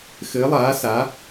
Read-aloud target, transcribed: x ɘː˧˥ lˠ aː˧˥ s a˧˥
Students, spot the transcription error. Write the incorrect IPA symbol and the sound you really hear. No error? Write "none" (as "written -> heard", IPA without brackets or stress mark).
none